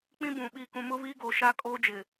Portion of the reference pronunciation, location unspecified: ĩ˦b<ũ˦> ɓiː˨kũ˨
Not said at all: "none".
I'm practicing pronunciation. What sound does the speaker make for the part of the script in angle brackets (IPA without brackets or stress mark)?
ũ˨